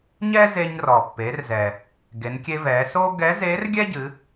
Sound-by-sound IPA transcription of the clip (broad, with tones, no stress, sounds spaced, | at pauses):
ɲ ɛ˥ z e˧ ɲ r ɔː˩ pː eː˩˧ r z ɛ˩ | ɡ e˩˧ n kʲ e˧ v ɛː˩˧ s o˥ ɡ ɛː˧˥ z eː˧˥ r ɡʲ ɛ˥ ɟ ɨ˩˧